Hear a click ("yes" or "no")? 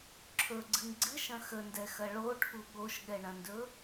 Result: yes